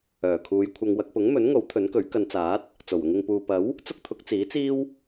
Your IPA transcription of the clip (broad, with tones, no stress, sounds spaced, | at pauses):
œː˨˩ kʰ uː˨˧ j kʷʰ ɐ˧ ŋ w ɐ˧ k̚ p ʊ˨˥ ŋ m ɵ˨˥ n ŋ o˨˥ w t̪ʰ ɵ˨˥ n k ɵ˨˥ ɥ k ɐ˨˧ n t͡s aː˨˥ t̚ | t͡s o˨˩ w ʊ˧ ŋ ɪ˨ ŋ p uː˨ p ɐ˨˥ w | t͡s ʊ˥ k̚ t̪ʰ ʊ˨˥ k̚ t͡s iː˨˥ t͡s iː˥ w